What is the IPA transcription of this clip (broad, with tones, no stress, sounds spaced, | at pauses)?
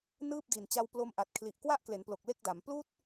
n ɯː˥˩ p̚ d i˨˩ n t͡ɕ a˧ w p l o˧ m ʔ a˨˩ t̚ kʰ l i˨˩ ʔ k w a˥˩ ʔ k l e˩˦ n p l o˨˩ k̚ l e˥˩ k̚ d a˩˦ m p l uː˥˩ t̚